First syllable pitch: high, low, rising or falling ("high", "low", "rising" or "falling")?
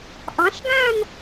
rising